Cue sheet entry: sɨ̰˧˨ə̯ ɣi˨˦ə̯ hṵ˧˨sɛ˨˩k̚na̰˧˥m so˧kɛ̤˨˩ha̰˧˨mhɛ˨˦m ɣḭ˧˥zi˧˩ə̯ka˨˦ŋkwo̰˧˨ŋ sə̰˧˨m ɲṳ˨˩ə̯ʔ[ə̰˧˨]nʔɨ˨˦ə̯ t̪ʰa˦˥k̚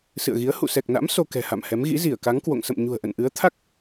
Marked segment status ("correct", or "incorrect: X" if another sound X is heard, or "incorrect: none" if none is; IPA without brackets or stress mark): correct